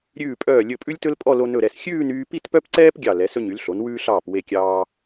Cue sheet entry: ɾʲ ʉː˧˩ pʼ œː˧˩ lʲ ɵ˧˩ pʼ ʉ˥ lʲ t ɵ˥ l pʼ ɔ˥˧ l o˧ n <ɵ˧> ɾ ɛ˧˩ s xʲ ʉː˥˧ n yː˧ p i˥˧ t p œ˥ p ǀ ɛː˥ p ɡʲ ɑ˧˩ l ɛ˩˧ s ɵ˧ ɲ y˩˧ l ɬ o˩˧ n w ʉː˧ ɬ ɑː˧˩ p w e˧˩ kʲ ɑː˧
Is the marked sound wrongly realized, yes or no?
yes